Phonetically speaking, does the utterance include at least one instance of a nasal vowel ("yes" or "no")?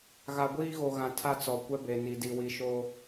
yes